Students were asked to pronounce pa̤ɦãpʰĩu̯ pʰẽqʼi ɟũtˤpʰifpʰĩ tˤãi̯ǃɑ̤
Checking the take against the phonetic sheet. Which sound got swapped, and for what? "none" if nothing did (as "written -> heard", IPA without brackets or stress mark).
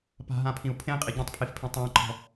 ɑ̤ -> ɔ̤